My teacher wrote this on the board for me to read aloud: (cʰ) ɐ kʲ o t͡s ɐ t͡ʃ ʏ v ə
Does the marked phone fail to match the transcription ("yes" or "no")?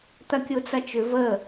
yes